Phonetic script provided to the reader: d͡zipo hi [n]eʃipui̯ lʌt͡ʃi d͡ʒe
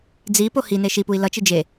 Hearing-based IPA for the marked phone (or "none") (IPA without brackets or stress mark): n